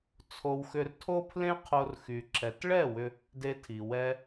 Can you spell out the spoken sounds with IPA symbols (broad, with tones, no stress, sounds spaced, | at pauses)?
t͡sʰ o˧ w x ʏ˧ r tʰ o˦ pʰ l ẽ˦ qʰ o˧ r x y˨ ǁ ɛ˨ t ɭ ɛ˦˨ w ʏ˧ | d e˧ tʰ i˨ w ɛ˧